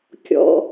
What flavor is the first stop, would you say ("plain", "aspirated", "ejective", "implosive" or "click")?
plain